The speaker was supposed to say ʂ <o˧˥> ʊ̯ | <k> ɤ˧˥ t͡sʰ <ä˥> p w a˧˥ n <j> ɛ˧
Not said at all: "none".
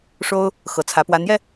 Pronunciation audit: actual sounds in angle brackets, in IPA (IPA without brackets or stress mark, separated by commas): o˥, x, ä˧˥, j